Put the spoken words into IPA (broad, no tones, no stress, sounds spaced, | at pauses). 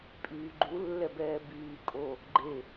pʼ yː ɡ͡ǃ u lː ɛ b ɛː b yː kʼ o | ɡ͡ǃ e